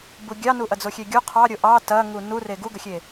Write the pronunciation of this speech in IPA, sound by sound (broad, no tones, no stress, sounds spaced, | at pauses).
b u ɡʲ ɑ n u ʔ ɐ d͡z o xʲ e ɡʲ u qʰ ɑ ɾʲ o ʔ ɑ t ɐ ŋ u n u r e ɡ u ɡ ə xʲ e